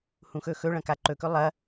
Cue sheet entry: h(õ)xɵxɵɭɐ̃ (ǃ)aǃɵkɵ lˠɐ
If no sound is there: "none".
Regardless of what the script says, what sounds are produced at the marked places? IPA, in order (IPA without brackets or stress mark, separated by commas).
ũ, k